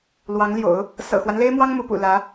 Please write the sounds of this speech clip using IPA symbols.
lwɑ˧˥ŋljo̰˨˩˦ʊ̯ | sɤ̰˨˩xwa˦nle˥ɪ̯mwɑ˥ŋ mu˧˥pṵ˨˩ lä˧˥

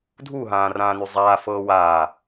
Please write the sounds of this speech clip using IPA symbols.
dʱuɦãː rãːnyzˤaːfɤː waː

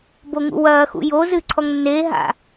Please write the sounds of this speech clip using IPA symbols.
boŋṵwɐːxṵ jozɨ ǀʰɔŋnːeː ɦa̰

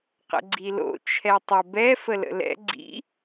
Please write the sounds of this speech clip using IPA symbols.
qə̰ɡ͡ǀilo̰ t͡ʃʰɛtˤə bɛ fələ̰lɛ̰ ɡ͡ǀḭ

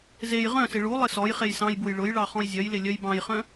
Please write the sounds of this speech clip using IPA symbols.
zej ʁœ̃sɪ ɭu lˠɪsɔjχej sɑ̃jbuj ɭʊjɭɑ χɔ̃jzʲœjlɪ lʲœjbɑ̃jχœ̃

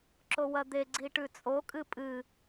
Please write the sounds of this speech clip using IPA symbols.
ǁowɐd̪e ɡ͡ǀiʈʉt͡sʼo kʼɨpʼɨ

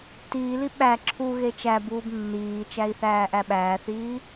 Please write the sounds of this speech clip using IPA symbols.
tiːli ɓæ ǁʰuɣe t͡ʃæbuːb nːiːt͡ʃæi̯θæːʔæ ɓæːθiː

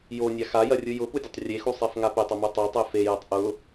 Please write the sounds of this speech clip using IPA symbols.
jonʲa xajɐrʲɯ jʊpudʲətˤ rʲexusˤefŋa petˤʊmɯ tˤɛtˤe fejɐtˤ ʔʊ

